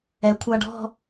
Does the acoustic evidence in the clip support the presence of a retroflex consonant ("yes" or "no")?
yes